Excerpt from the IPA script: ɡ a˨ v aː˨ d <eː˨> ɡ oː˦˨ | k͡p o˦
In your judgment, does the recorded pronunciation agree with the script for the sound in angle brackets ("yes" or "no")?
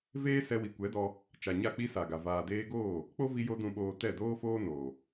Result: no